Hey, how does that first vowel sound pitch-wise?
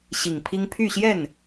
low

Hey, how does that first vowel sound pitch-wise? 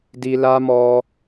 high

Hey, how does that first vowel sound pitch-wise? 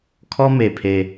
high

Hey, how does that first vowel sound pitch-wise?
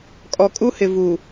low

